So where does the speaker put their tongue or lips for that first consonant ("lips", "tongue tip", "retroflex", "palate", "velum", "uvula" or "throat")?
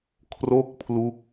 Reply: velum